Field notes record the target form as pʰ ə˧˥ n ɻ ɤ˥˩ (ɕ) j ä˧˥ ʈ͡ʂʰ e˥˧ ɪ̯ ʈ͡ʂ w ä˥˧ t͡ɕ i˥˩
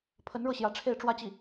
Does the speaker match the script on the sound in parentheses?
yes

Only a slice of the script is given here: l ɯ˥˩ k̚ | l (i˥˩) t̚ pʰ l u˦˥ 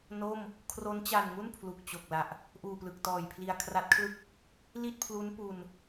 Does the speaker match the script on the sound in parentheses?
yes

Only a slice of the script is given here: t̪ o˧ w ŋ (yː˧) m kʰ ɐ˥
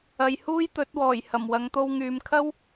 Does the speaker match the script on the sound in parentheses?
no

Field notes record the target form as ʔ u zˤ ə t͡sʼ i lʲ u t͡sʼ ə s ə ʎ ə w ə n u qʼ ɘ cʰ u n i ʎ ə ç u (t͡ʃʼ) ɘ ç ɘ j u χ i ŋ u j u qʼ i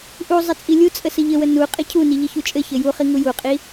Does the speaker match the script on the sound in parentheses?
yes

